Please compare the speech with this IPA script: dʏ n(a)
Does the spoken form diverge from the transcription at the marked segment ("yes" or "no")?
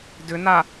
no